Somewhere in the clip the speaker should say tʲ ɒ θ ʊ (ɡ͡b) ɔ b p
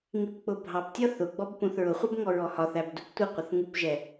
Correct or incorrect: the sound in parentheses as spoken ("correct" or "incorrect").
correct